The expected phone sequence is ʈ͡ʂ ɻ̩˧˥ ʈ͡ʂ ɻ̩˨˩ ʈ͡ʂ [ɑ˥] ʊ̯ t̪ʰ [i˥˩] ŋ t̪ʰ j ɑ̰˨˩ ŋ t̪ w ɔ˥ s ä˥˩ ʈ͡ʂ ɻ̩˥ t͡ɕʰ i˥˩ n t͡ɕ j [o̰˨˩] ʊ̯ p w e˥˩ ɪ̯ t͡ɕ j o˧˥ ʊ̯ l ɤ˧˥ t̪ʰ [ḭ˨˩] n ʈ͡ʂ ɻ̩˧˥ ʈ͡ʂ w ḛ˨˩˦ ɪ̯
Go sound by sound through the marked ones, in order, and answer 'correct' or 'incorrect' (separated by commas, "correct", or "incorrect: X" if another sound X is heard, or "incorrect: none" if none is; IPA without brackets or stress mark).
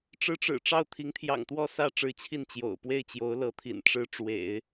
incorrect: ɑ˥˩, incorrect: i˧˥, correct, correct